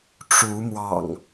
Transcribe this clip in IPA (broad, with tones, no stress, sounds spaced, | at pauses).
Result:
ʈ͡ʂ u˨˦ m w ɑ̰˨˩ ŋ